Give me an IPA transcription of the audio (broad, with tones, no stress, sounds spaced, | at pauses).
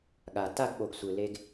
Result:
ɠ a˩ t a˥˨ ɡ ɓ o˩ ɡ sʷ ɯ˩ l e˧ ɡ